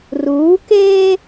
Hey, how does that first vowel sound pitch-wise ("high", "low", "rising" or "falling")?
rising